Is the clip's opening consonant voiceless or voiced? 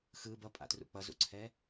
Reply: voiceless